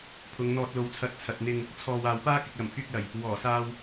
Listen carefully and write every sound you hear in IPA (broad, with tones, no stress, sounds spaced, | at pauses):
pʰ ʊ˨˧ ŋ n̪ ɔː˧ t̚ l o˨˧ w t͡sʰ ɐ˨˥ t̚ t͡sʰ ɐ˨ t̚ n̪ ɪ˧ ŋ | t͡sʰ ɔː˨ w aː˨ w p aː˥ k ɪ˨ k̚ l ɐ˨˩ m pʰ yː˧ k̚ l ɐ˨˩ j | w ɔː˨˩ s aː˧ w